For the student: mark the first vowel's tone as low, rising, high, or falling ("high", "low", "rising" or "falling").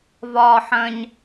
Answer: low